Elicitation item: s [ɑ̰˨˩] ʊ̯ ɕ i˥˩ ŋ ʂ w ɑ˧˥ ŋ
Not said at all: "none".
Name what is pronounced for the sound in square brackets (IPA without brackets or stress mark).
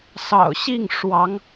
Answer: ɑ̰˨˩